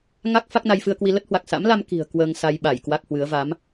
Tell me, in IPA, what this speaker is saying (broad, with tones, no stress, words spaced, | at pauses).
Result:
ŋa˦˥k̚ fa˦˥k̚na˧jfɨ˧ə̯kwi˧ lə˦˥t̚hwa˨˩k̚ sa̰˧˥mla˧m ki̤˨˩ə̯ kwəː˧ŋ sa˧jɓa˧˩j kwa˦˥k̚hwɨ˨˦ə̯ va˨˦m